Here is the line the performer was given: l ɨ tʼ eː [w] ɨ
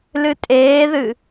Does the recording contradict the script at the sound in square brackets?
yes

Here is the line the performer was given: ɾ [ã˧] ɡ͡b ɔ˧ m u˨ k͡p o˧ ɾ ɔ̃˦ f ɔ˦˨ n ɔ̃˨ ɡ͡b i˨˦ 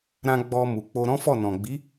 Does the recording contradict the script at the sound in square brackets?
no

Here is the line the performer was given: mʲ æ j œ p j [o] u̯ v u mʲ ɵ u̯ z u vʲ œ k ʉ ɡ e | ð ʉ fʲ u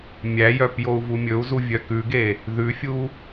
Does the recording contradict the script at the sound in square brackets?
no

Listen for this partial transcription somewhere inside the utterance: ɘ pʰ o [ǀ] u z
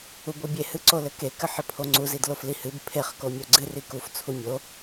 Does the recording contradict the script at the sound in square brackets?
yes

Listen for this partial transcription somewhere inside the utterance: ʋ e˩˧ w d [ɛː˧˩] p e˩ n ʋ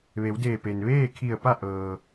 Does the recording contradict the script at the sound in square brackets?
yes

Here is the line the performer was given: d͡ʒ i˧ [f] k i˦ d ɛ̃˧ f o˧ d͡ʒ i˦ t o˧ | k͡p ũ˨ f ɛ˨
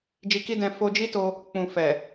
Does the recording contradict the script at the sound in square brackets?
yes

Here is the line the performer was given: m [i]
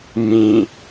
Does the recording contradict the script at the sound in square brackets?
yes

